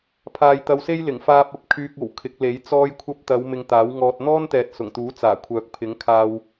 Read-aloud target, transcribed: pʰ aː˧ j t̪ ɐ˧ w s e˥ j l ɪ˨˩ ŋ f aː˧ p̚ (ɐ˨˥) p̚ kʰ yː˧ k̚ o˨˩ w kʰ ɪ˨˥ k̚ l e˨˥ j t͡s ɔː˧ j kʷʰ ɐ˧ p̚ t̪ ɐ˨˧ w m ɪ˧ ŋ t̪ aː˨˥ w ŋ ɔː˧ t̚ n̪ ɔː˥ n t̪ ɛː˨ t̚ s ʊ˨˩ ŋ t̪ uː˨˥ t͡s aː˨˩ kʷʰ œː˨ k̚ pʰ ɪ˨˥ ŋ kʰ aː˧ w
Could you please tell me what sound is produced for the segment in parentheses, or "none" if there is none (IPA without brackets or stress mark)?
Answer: ɐ˧